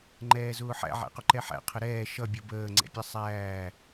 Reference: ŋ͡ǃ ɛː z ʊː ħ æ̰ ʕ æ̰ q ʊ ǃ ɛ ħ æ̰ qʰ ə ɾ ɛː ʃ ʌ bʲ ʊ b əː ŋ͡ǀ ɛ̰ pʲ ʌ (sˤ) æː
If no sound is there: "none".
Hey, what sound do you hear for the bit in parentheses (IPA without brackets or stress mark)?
sˤ